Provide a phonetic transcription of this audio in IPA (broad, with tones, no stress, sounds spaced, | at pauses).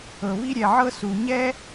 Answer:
ɤ˩ β i˥ ɾʲ ɛ˩ ʕ ɤ˥ s u˩ ɲ ɛ˥